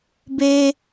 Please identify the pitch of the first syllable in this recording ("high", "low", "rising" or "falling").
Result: high